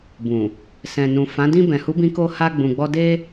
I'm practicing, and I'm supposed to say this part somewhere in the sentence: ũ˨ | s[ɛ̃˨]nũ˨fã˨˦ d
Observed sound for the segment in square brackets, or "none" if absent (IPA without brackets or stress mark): ɛ̃˨